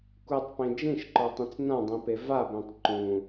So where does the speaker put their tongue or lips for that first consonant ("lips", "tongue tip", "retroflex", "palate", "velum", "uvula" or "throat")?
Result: velum